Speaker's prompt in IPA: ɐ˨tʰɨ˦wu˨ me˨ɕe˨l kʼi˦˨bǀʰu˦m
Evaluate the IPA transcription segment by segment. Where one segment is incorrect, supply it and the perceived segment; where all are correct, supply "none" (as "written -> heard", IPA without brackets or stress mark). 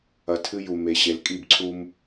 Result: w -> j